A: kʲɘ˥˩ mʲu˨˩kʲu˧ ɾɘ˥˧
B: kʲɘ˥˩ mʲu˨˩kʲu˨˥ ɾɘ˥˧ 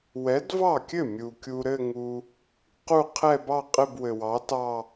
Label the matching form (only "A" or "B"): A